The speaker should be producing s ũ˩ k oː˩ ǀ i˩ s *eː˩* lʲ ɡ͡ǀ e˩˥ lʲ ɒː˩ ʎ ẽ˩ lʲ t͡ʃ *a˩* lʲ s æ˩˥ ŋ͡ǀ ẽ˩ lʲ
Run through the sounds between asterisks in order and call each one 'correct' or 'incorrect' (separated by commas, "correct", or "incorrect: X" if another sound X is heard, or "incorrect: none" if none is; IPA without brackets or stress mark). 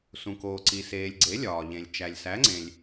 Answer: correct, incorrect: æ˩